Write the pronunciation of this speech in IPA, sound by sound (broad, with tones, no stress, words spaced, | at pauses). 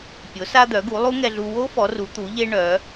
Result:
pʲo˩˧sa˧d̪œ˩˧ɡu˩˧ lˠu˦˥ŋɛ˧ɮu˧ wo˦˥ fɔ˩˧ru˩˧ t̪u˩˧ʎe˧ ɳœ˩˧